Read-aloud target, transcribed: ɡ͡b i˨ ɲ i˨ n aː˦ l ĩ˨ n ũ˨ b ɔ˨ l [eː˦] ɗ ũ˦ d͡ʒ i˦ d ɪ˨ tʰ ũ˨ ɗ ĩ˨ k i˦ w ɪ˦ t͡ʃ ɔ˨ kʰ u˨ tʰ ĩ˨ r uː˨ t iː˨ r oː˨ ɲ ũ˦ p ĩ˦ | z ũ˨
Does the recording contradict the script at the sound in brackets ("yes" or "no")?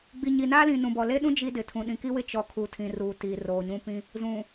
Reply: yes